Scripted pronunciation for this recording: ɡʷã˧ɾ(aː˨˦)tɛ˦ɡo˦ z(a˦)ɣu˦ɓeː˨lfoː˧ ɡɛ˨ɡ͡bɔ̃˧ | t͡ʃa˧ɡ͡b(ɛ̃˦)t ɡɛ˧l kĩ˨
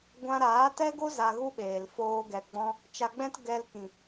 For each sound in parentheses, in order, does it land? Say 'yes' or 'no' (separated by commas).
yes, no, yes